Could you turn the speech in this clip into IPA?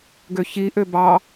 ɡøçiʔø bɑ

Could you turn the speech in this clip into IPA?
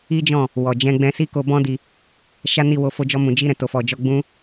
i˦d͡ʒɔ̃˦˨ | wɔ˨d͡ʒɛ̃˧ɡ͡bɛ̃˧si˦ ko˧bɔ̃˦di˧ | ʃa˦ni˦˨ wo˧fo˧d͡ʒɔ˧mũ˨ d͡ʒi˧ɾɛ̃˨ to˨fɔ˨d͡ʒɔ˧ ɡ͡bũ˧

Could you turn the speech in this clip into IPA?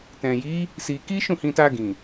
tɛ̃˨ji˨˦ | si˧ ki˦ʃũ˦˨hĩ˧ta˧ ɡĩ˨

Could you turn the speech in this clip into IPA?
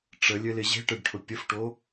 ʈ͡ʂəlʲɘlɪ ʑe̤ʈɘɖʈʰʊ pʲəfʈo

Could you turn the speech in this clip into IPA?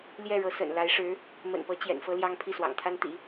ljɛ˥˩ɻɤ˧˥sə̰˨˩n la˧˥ɪ̯ʂɻ̩˧˥ | mə̰˨˩npɤ˧˥ t͡ɕjɛ̰˨˩nfɤ˥ ljɑ˥ŋpʰi˥˩swɑ̰˨˩ŋt̪ʰa˥n t̪ḭ˨˩˦

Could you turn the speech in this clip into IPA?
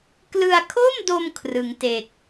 klɯ˧a̯kʰo˥˩mdo˧m kʰrɯ˩˦ŋte˨˩k̚

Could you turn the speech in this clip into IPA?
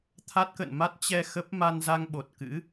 t̪ʰa˦˥t̚kə̰˧˨nma˦˥t̚ t͡ɕɛ˧ xə˦˥p̚ ma˧nza˧ŋɓo˨˩t̚kɨ̰˧˥

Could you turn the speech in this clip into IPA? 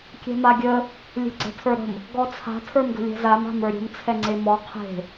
kʲɛ̤maɡʲə | lʲe̤ɡ͡ǀɛ̤tʰə˞ɾə̤m | ɡɔt͡sʰa̤ tʰə˞mɡə̤lʲɛ̤zam a̤mə˞ɾʲə̤m t͡sʰɛŋ͡ǀemɔ qʰe̤

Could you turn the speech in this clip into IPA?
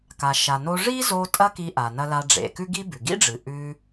ka˩ʃa˩no˧ ʐi˥zo˧ tʼɐ˥ki˧ʔa˩nɐ˧ la˧ɖ͡ʐḛ˩ kʉ˥ɡi˥bʉ˩ ɡḭ˥ɖ͡ʐɨ˩ ʔʉ˧

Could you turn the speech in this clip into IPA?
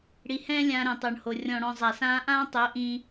ɽi˨hɛ̃ː˦ lʲãː˧ɾɛ̃˨tˤʊː˨ɳho˨ rʲɔ̃˨ɽɔ̃˨ zˤa˨sãː˦ ʔãː˦tˤʊː˨˦ ʔĩː˧

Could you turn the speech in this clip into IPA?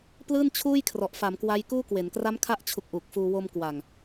plɯː˥˩nt͡ɕʰuː˥˩jkʰrɔ˨˩ʔ fa˩˦mkwa˦˥jkuː˥˩kwe˩˦n kra˦˥mkʰa˦˥ʔt͡ɕʰu˨˩k̚ ʔu˨˩k̚fuː˧ wo˧mkwa˨˩ŋ

